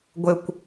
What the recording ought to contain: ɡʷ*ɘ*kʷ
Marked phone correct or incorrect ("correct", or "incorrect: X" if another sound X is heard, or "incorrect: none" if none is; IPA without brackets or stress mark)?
correct